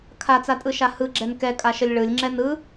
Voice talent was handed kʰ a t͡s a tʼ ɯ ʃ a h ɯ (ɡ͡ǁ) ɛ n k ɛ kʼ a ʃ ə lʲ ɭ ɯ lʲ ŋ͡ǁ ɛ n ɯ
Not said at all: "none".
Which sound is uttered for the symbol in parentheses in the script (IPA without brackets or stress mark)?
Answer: ɡ͡ǁ